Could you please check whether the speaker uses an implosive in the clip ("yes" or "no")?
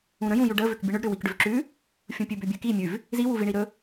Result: no